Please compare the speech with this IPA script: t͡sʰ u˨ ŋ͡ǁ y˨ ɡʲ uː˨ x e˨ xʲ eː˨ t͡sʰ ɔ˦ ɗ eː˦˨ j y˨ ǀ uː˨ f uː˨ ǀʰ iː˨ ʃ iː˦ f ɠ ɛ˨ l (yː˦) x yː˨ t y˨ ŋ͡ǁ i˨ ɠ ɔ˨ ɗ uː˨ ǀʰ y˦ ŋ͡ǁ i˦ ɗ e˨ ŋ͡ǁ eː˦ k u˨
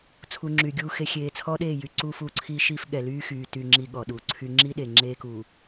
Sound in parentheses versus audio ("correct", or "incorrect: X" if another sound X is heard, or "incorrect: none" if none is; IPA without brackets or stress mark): correct